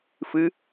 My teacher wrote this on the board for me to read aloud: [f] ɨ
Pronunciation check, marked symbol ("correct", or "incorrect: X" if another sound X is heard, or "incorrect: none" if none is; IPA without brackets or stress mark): correct